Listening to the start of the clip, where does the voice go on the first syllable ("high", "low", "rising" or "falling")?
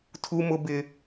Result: high